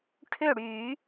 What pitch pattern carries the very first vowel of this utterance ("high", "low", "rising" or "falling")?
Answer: falling